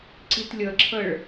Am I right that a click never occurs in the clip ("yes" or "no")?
no